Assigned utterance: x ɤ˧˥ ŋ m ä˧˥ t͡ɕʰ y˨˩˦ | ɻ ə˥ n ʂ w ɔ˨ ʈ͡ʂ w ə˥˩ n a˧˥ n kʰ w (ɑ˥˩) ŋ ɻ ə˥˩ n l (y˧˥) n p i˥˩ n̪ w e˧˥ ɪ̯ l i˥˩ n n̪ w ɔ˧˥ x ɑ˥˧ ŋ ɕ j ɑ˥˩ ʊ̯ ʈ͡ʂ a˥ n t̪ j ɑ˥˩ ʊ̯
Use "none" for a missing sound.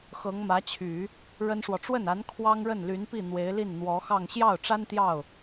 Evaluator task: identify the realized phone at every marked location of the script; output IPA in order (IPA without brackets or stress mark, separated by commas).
ɑ˥, y˧˥